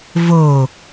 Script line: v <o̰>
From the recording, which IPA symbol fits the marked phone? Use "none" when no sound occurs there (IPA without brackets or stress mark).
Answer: o